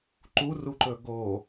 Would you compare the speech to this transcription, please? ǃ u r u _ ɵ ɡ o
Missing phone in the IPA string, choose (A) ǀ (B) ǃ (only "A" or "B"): B